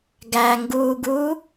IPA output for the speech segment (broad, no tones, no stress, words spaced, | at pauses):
ɡæŋɡuːɡuː